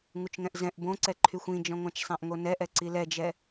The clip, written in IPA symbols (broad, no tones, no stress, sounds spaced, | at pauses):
ŋ u t͡ʃ ŋ ɛ̃ ʔ z ɛ̃ ʔ b õ ǀ ɛ ǃʰ y xʷ ĩ d͡ʒ ɔ̃ ŋʷ ã t͡ʃ sˤ ã ʔ ŋ o n ɛ ʔ ɛ ǀ i l ɛ d͡ʒ ɛ